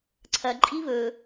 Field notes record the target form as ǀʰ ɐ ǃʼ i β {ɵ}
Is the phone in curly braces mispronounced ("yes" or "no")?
no